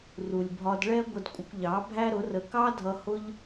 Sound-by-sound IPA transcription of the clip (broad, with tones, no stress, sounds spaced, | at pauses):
r u˨ lʲ bʱ ɒ˧ d ɭ ɛ˦ ɡʷ ə˧ d kʷʼ ə˧ kʷ ʎ ɑ˨˦ bʱ æ˦ ɾ ʊ˨˦ r ə˧ k ɑ˦ dʱ ʌ˧ h ʊ˦ ʎ